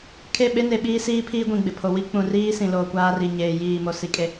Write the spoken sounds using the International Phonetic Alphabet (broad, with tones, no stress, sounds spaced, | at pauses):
kʰ e˦˨ ɓ e˦ n e˨ ɓ iː˦ s iː˦ pʰ iː˦ ɡʷ ĩ˨ ɡ͡b ɪ˨ pʰ o˨ w i˦ k͡p ũ˨ r iː˦ s ĩ˨ l oː˨ kʷ aː˦ r i˨ ɲ eː˨ j iː˦˨ m o˨ s i˨ kʼ e˨